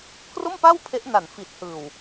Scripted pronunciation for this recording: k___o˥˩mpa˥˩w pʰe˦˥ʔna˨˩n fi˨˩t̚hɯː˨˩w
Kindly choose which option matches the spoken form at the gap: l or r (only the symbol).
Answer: r